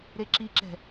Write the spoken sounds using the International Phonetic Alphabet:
ɾ e ǁ i ǁ ɛ̤

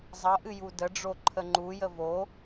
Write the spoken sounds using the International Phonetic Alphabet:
zˤ ʌ ʔ ɨ j u d ə ɖ͡ʐ o ǃʰ ə ŋ͡ǃ u j ə v o

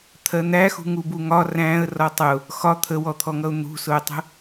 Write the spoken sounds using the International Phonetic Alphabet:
t̪ʰ ɜ n̪ æ x ṳ ŋ u b u ŋ ɒ r æ̃ ə̯ r ɒ tˤ ʊ | x ɒ t̪ʰ ə w ɔ t̪ʰ ɔ ŋ ʌ ʊ̯ n̪ ṳ s ʊ ə̯ tˤ ə̤

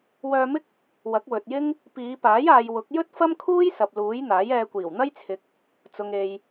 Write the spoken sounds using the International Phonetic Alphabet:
w œː˧ m ɪ˥ k̚ | w ɐ˨˥ k̚ w ɵ˨ t̚ j ɪ˥ ŋ | p iː˨˧ p aː˨˥ j aː˨ j w ʊ˨˥ k̚ j ɵ˥ t̚ f ɐ˥ m kʰ uː˥ j s ɐ˨ p̚ l uː˨˥ j n̪ aː˨˥ j ɛː˧ kʷ iː˨˩ w n̪ ɐ˥ j t͡sʰ ɪ˨ k̚ | t͡s ʊ˨ ŋ e˨ j

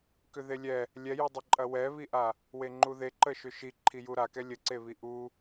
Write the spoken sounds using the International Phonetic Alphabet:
k ʏ ð e lʲ ɛ | lʲ ɛ j u dˤ ə ǃʼ ɐ w ɛ β i ʔ a | w e ŋ͡ǃ u ð e ǃ ə ʃ ʏ ʃ i ǃʰ i j u ɾ a k ɛ lʲ ə ǀ e β i ʔ u

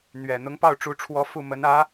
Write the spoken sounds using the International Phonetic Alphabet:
n̪ ɥ ɛ˨˩ n̪ ʊ˧˥ ŋ p ɑ˥˩ ʊ̯ ʈ͡ʂ u˧˥ ʈ͡ʂʰ w ɔ˧˥ f u˥˩ m ə˧˥ n ä˧˥

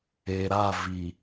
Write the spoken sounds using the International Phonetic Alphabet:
e˨ ɾ a˦˨ v i˨

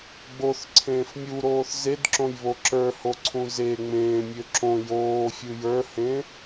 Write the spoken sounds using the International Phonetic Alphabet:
ɡ͡b o θ ǀʰ ẽː f mʲ u ɾ oː θ z e d ǁ õ j β o ǁ ə˞ h o ǀʰ ũ z e ŋ͡m ẽː mʲ ø ǁ õ j oː fʲ ɯ j ə˞ h ẽ

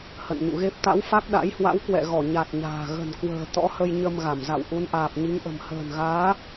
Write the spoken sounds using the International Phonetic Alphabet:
h ə̰˧˨ n ɲ ṵ˧˨ ɣ e˦˥ p̚ t̪ a̰˧˥ w f a˦˥ k̚ ɗ a̰˧˥ j h w a̰˧˥ w k w ɛ̰˧˨ ɣ ɔ˧˩ ɲ a˨˩ t̚ ɲ a̤ː˨˩ ɣ ə̤˨˩ n k w ə̤ː˨˩ t̪ ɔ̰˧˥ h ə˧ j ɲ ə˧ m ɣ a˧˩ m z a̰˧˨ w ʔ u˨˦ n ʔ aː˨˩ p̚ ɲ i˨˦ ŋ ʔ ə̤˨˩ m h ə̤ː˨˩ n ɣ aː˨˦

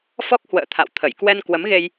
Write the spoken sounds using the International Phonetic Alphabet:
f ɔ˦˥ k̚ h w ə̰ː˧˨ t̪ʰ a̰˧˨ w t̪ʰ ə˧˩ j k w ɛ˧ n k w ə˨˦ m ɣ e˧ j

